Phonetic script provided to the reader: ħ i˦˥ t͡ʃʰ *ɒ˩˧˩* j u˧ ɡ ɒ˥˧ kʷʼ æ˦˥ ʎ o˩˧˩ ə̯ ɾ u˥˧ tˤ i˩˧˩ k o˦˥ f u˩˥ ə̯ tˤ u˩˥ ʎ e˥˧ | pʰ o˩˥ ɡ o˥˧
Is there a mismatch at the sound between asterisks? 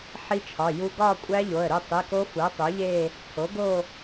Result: no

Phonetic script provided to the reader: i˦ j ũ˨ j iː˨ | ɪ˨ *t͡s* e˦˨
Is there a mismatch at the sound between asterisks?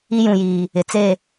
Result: no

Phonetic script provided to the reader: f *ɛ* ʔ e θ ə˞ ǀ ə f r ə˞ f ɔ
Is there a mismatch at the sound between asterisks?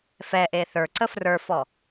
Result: no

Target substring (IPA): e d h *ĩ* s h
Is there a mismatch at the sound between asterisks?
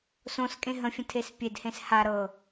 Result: yes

